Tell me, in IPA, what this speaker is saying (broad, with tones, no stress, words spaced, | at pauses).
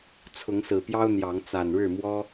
t͡sʰʊ˨˦ŋsɹ̩˨˩pjɑ˦ʊ̯ n̪jɑ˨˦ŋ t͡sa˨˩nɻɻ̩˥˨ mwɔ˦